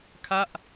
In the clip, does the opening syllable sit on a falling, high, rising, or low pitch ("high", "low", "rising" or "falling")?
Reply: falling